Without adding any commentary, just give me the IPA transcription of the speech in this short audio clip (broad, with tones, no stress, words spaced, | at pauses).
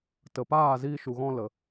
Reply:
tə˨paː˦˨ ziː˧ʃu˨ɣɔ̃˧ lə˨